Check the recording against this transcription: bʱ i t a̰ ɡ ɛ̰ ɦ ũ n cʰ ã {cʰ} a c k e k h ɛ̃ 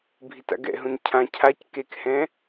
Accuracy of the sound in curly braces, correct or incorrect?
correct